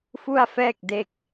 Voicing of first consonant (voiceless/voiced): voiceless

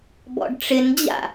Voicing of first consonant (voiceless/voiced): voiced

